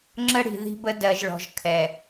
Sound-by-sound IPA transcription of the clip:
ŋ͡ǁ ə˦ ɽ i̤˨ ð i̤˦ b ə˦ d ɜ˨ ʒ ɭ ɔ̤˨ ʒ kʰ ɛ˨

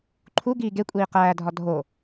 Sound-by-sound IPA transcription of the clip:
ǃʰ u ɡ iː ɡ e kʷʼ iː q æː dʱ ɒ dʱ o

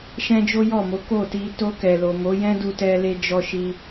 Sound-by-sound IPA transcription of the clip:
ʃ ɛ̃˦ d͡ʒ o˦ j ɔ˦˨ m o˨˦ k o˦˨ t i˧ t o˧ k ɛ˨ l o˨ m o˨˦ j ɛ̃˦ d u˧ t ɛ˧ l e˧ d͡ʒ ɔ˧ ʃ i˧

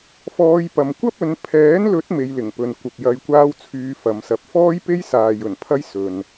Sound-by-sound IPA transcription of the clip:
f ɔː˧ j p ɐ˨ m kʷ ɐ˥ p̚ ɵ˨˧ n pʰ ɛː˨˥ n l ɵ˨˥ t̚ m e˧ j l ɪ˨˩ ŋ p ɵ˨ n kʷ ɐ˨ p̚ j ɐ˧ j kʷ aː˥ w t͡sʰ yː˧ f ɐ˨˧ m s ɐ˧ p̚ f ɔː˥ j p e˥ j s aː˨ j ɵ˨˩ n pʰ ɐ˥ j s ɵ˨ n

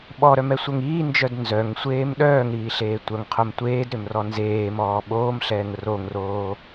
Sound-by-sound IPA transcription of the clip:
ɓ ɔ ɾ œ m ɛ sʷ œ ŋ iː n d͡ʒ œ d n z œ ŋ sʷ eː m ɗ œː ŋ ɾ iː ɬ eː tʷ œ ŋ qʰ o m tʷ eː d ɾ ø m r ɔ n z eː m ɔː ɓ oː m ɬ ɛː ŋ r o ŋ r oː

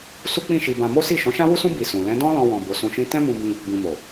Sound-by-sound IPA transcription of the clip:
s u˦ k͡p ĩ˦˨ ʃ i˧ b ã˧ m o˦ s i˦˨ ʃ ɔ̃˨˦ ʃ ã˦ w u˦ s ũ˦ b i˧ s ũ˨ l ɛ̃˨˦ d ɔ̃˦ l ɔ̃˧ w ɔ̃˨ b o˨˦ s ũ˧ ʃ ĩ˦ t ɛ̃˦ m ũ˧ b ĩ˧ | b ĩ˨ m o˨

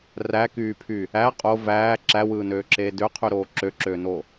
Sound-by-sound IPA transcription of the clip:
r æ k yː pʰ y | æ qʼ o v æː ǁ æ w ɯː n øː ǁ eː d ø qʰ y ɾ oː ǁ ø ǁ øː n o

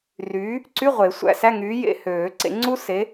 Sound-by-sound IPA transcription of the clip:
r yː˨˥ | ǀ y˧˥˧ ʁʷ e˨˩˦ sʷ æ̰˧˥˧ s æ˧˥˧ ŋ yː˨˥ j ḛ˧˥˧ h øː˨˩˦ ǀ ḛ˨˩˦ ŋ͡ǀ u˥ s e˨˥

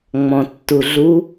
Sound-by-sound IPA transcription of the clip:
ŋ͡m ɔ̃ tː u ɮ u

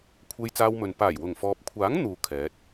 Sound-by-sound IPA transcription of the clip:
kʷʰ e˧ j t͡s aː˧ w m ɵ˨ n p aː˨˩ j w ʊ˨˩ ŋ f ɔː˨ p̚ kʷʰ aː˨˥ ŋ n̪ uː˨ kʰ ɛː˨˥ t̚

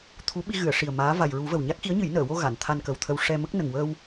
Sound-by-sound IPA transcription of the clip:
t̪ʰ u˧˥ ɓ i˧ ɣ ɨ˨˩˨ ə̯ ʂ i˨˩ ə̯ m aː˧˥ v a˨˩ j ɹ u˨˩˦ v ə˨˩ w ɲ a˦˥ k̚ x i˧˥ ə̯ ɲ ɨ˨˩˦ j n əː˨˩˨ w o˧ ɣ a˨˩˨ n t̪ʰ a˧ n k ə˨˩ w t̪ʰ ə˧ w ʂ ɛ˧ m ə˦˥ k̚ n ə˨˩ ŋ w əː˧ w

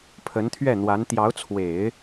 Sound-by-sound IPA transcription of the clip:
pʰ ə˧˥ n t̪ʰ ɥ ɛ˥˩ n̪ w a˧˥ n t̪ j ɑ˧˥ ʊ̯ t͡sʰ w e˨˩˦ ɪ̯

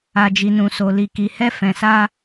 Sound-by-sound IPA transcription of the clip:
a˨ d͡ʒ i˨ n ũ˨ s o˨ l i˨ k i˨ h ɛ˧ f ɛ̃˨ s a˧

